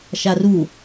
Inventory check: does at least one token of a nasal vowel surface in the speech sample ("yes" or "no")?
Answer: no